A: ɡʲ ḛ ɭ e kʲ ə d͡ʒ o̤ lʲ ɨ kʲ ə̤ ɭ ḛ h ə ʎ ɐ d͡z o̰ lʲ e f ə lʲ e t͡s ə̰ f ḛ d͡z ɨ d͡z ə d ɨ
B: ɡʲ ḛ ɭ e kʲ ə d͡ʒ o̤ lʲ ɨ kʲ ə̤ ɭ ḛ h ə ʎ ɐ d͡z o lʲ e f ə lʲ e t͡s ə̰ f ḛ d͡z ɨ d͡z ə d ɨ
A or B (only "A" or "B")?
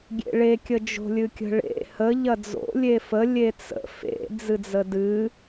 A